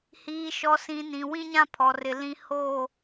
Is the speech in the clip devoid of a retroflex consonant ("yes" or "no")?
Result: yes